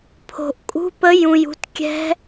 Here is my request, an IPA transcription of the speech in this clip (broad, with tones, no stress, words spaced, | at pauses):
pʰo̤˨˩ʔkʼṳ˧˥˧pə˧˥ jũ˨˩jṳ˧tkʲɛ̤˧˥